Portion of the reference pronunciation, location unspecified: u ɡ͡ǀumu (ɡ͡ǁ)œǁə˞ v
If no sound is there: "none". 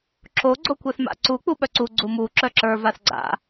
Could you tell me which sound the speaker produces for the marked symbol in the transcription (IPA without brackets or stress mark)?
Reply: ǁ